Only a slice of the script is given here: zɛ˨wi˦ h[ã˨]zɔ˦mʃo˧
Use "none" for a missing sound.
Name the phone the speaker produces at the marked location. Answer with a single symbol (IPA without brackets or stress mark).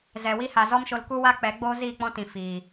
a˨